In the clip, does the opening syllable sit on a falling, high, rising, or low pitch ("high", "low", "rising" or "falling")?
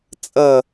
falling